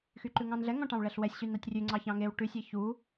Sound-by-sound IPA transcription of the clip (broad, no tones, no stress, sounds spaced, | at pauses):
x y ǃ ʉ ŋ ɑ̃ n ɮ ɛ ŋ ɔ̃ ʈ ɑ̃ w ɭ ɛ ɬ w ɛ sʲ ɕ y n ɑ tʲ rʲ ʉ ŋ͡ǀ ɑ ç ɑ̃ ŋ e w ʈ ʉ sʲ e ç u